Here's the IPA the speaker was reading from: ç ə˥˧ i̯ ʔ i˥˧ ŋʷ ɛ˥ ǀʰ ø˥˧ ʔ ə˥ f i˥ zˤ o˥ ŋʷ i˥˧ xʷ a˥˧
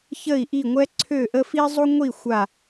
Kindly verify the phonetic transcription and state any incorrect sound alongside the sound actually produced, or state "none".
none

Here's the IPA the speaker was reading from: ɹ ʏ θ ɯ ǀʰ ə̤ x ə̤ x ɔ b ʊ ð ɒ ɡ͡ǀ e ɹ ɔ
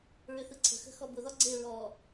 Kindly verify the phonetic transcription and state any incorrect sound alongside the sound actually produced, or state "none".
none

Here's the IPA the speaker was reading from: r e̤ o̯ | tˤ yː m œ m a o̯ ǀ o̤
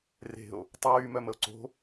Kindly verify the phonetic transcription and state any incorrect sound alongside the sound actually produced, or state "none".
a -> ə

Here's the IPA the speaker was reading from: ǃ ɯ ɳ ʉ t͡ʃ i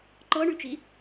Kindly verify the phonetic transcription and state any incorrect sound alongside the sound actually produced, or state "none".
ɯ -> ɤ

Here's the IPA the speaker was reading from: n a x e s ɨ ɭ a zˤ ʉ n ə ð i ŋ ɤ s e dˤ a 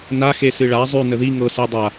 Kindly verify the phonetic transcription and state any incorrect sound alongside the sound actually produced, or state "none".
none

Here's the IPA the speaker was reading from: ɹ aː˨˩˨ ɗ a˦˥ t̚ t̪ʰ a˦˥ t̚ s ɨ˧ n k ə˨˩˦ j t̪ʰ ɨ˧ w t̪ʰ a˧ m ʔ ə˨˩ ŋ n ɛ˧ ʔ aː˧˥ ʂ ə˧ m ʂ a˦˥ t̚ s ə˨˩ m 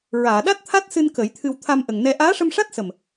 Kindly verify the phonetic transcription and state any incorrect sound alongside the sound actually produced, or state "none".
none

